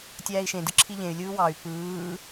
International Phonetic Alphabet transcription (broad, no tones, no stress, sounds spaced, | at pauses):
tʲ æː i̯ ʃ ẽ d ɯ ǁʰ i ʎ ẽ y̯ lʲ ɯː w ɑ y̯ p ɯː